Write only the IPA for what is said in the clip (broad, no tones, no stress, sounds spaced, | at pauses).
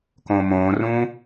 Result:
k õː m õː r ũː